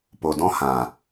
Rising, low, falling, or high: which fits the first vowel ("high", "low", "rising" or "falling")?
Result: low